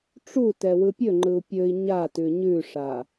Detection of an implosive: absent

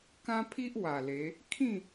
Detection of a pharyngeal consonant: absent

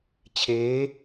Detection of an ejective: absent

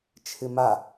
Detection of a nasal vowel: absent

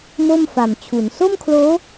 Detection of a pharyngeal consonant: absent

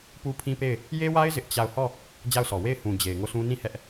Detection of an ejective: absent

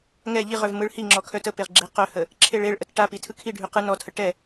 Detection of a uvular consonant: present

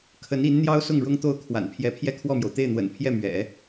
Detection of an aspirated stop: present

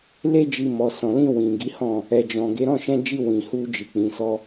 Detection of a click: absent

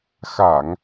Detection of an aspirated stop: absent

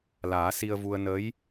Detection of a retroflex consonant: absent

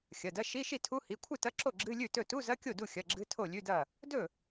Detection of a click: present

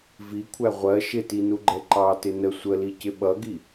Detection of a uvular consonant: present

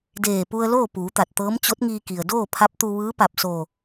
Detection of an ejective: absent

